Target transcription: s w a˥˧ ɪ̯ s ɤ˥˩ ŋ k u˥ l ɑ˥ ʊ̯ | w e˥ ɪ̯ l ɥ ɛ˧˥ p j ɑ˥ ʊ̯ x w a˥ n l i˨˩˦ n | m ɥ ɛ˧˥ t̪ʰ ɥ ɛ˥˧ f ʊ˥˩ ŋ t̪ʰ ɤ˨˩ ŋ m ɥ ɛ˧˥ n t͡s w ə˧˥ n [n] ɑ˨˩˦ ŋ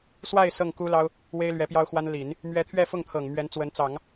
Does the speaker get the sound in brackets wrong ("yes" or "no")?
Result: yes